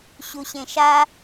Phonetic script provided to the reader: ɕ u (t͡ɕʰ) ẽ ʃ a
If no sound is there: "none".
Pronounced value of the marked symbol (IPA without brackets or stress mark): ɕ